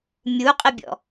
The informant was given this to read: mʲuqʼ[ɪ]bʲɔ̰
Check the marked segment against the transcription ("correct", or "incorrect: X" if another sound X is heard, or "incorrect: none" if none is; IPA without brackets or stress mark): correct